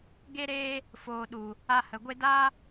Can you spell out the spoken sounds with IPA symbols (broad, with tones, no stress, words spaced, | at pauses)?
ɡe˧ɾeː˧ | foː˨ɗu˨ | a˧hə˨ ɡʷe˧daː˦